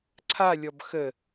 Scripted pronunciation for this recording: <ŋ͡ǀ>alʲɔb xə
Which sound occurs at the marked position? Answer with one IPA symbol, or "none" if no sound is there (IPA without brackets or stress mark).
ǀʰ